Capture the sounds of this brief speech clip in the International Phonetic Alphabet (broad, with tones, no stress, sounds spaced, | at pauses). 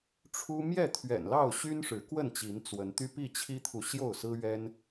ʈ͡ʂʰ u˦ m j ɛ˥˨ t̪ʰ ɥ ɛ̰˨˩ n l ɑ˥˨ ʊ̯ ɕ y˦ n ʂ ɻ̩˨˦ k w ə˥˨ n t͡ɕ i˨˦ n t͡s w ə˨˦ n t̪ y˦ p i˥˨ t͡ɕʰ i˦ t̪ʰ u˨ ɕ j o˥˨ ʊ̯ s ɹ̩˦ ɥ ɛ˦ n